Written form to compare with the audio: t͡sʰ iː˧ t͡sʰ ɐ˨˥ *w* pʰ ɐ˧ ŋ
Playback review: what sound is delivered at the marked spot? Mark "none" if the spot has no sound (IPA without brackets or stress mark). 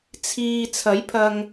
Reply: j